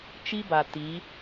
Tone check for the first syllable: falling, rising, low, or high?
high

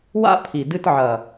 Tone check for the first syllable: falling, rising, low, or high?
high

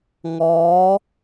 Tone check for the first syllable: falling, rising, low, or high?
rising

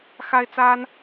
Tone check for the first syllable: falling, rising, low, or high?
high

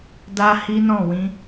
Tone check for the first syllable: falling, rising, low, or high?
high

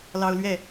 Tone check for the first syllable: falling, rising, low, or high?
high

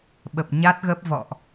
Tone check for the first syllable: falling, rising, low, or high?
low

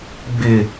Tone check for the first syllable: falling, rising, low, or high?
low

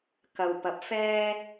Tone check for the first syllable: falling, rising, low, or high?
low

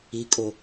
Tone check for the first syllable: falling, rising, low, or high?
rising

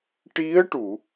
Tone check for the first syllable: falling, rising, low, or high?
rising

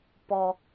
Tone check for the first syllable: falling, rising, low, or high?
low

